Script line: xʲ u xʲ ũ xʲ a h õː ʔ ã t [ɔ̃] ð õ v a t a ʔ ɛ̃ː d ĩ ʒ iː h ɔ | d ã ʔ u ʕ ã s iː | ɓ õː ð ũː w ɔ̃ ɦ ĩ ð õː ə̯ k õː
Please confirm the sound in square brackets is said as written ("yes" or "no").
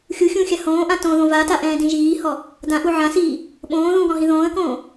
no